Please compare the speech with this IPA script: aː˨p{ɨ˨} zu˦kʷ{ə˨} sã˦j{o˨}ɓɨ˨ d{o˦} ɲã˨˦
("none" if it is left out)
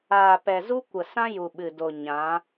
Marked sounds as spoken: ɛ˨, ə˨, u˨, o˨

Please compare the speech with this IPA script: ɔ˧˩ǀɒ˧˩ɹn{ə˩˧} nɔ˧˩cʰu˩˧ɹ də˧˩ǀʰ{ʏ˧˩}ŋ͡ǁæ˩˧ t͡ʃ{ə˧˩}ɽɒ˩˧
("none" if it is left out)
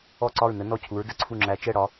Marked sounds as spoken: ə˩˧, u˧˩, ɛ˧˩

